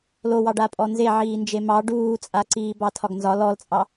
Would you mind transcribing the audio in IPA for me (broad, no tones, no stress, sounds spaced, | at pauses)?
l o w ɑ ɖ a pʼ ɔ n z e ʕ iː n d͡ʒ e m ɑ ɖ uː t͡sʼ a ǀ iː b ɑ tʰ ɒ ɡ n z ɒ l ɔ l t͡sʼ ɑ